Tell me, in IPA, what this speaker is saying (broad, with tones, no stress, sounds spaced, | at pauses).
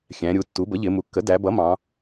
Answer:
xʲ æ̃˩˧ ɾʲ u˩˧ tː u˩˥ b ə˩˥ ʎ ɪ˩˧ m u˩˧ kː ə˩˥ d æ˩˧ b ʌ˩˥ m ɑ̃˩˧